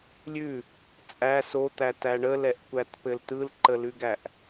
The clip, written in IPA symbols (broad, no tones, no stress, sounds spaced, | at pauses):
lʲ ʉ | t͡sʼ æ s o t̪ æ t æ ɳ ə l ɛ ʔ kʷ æ t p ɘ l t ɯ l ǃ ə l ʉ ɡ æ ʔ